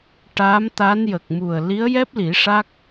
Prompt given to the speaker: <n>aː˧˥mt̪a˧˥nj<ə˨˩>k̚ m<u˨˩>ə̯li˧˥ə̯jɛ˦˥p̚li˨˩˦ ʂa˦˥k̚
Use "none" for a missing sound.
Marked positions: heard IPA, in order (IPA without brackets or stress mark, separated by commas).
ʈ, ə˨˩, u˨˩